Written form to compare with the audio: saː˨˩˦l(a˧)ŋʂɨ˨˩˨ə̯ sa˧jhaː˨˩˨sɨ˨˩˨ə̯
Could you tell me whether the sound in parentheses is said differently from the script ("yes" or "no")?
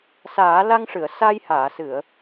no